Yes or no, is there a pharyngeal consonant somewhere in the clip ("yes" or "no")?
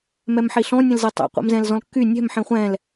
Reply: yes